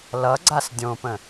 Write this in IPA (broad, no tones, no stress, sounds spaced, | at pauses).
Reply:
l ʌ ɡ͡ǀ a s dʲ õ p ə̃